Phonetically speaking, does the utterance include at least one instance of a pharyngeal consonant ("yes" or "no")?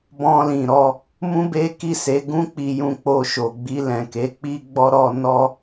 no